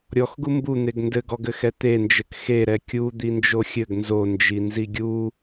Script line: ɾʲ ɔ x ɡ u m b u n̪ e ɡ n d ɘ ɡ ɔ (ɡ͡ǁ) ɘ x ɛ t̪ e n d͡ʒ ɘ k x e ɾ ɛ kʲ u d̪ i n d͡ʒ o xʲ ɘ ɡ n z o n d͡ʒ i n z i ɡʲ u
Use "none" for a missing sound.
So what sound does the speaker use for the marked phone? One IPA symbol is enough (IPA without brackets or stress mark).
ɡ